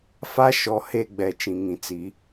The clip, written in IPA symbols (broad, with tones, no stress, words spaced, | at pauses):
fa˦ ʃɔ˨ he˦˨ɡ͡bɛ˨ t͡ʃĩ˨ŋĩ˨ t͡si˨˦